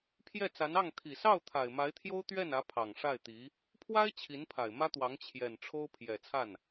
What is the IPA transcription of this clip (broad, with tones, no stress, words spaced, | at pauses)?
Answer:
pʰjɛ˥˩t͡sa˧˥n ɑ˥˩ŋ t̪ʰi˨˩sɑ˥˩ʊ̯ t̪ʰa˨˩ɪ̯ma˧˥ɪ̯t̪ʰjo˥ʊ̯ t̪ɥɛ˥˩nä˧˥ pʰɑ˨˩ŋʂa˥˩ɪ̯t̪i˧˥ | pʰwa˥ɪ̯ t͡ɕʰi˧˥npʰa˨˩ɪ̯ mä˥t̪wɑ˧˥ŋ t͡ɕʰjɛ˨˩nʈ͡ʂʰo˥ʊ̯ pʰjɛ˨˩ t͡sʰa˥˩n